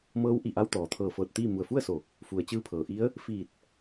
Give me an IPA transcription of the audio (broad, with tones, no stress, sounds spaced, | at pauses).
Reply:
m ɤː˧˥ w ʔ i˧˩ ʔ a˧ w t̪ ɔː˩ t̪ʰ ɤː˧˩ f ɤː˧˩ t̚ t̪ iː˥˨ m u˧˩ ə̯ f u˥˨ ə̯ s o˧˩ | f u˩ ə̯ t͡ɕ ɯː˧ pʰ ɤː˩ ʔ i˧˥ ə̯ | f iː˧˩ t̚